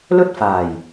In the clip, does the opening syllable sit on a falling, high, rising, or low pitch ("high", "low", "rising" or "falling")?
high